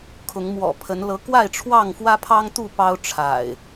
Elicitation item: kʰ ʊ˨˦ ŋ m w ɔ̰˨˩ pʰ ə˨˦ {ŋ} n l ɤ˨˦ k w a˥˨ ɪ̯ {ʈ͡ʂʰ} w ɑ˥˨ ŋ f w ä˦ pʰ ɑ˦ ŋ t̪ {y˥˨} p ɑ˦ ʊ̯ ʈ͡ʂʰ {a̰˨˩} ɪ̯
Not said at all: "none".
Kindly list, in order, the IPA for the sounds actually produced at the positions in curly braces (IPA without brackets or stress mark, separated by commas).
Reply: none, ʈ͡ʂʰ, u˥˨, a̰˨˩